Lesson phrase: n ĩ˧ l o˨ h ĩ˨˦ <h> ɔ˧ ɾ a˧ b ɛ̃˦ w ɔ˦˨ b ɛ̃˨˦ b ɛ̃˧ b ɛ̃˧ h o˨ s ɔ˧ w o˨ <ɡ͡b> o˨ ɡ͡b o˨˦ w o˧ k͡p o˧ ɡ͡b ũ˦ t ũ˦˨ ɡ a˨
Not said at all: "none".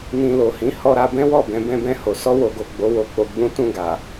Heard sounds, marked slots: h, ɡ

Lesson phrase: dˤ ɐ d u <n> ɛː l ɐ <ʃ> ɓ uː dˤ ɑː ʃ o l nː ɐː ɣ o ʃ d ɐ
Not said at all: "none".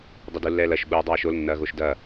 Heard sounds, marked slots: lː, ʃ

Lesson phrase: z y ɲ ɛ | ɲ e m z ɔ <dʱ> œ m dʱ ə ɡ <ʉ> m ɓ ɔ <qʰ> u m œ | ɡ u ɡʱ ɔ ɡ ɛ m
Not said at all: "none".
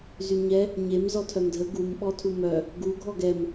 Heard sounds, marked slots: tʰ, u, tʰ

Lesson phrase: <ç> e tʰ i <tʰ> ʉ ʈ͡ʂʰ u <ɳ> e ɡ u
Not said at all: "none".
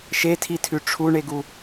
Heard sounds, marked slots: ʃ, tʰ, ɳ

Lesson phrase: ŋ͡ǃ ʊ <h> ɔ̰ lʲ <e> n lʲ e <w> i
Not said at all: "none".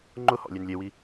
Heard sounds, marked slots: h, e, w

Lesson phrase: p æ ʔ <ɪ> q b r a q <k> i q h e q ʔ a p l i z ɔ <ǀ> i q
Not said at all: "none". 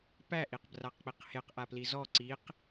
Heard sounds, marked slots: i, k͡p, ǀ

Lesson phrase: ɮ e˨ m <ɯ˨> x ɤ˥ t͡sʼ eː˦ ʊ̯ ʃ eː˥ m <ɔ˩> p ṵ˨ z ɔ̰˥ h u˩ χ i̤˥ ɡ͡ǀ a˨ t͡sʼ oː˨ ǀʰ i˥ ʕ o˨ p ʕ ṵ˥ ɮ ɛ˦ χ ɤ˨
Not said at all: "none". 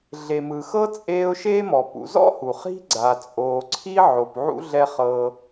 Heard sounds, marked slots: ɯ˨, ɔ˩

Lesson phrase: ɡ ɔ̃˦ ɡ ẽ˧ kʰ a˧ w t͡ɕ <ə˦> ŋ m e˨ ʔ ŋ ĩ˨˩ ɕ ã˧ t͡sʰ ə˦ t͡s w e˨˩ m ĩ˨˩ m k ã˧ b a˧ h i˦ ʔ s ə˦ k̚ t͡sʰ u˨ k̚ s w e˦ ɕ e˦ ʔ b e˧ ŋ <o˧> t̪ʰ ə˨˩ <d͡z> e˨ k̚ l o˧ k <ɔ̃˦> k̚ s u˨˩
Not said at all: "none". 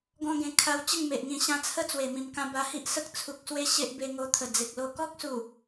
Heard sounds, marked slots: ə˥˧, o˧, d͡z, ɔ˦

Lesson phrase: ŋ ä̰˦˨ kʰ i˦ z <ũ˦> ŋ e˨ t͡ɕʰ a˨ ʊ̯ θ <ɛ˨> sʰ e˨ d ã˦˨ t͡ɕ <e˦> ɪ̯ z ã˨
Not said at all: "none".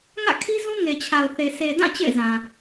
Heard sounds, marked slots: ũ˦, e˨, ḛ˦˨

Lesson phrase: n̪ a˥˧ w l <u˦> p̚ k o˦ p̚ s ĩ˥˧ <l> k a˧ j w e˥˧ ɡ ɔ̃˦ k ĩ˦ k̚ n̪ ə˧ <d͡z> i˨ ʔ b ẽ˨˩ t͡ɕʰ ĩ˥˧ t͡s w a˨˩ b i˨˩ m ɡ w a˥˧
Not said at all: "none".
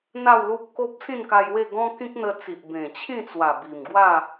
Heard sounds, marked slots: u˦, n, t͡s

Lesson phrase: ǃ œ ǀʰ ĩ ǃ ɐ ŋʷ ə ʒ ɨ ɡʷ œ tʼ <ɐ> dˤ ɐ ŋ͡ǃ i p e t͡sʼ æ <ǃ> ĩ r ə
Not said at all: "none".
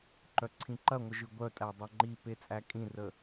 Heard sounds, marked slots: æ, kʼ

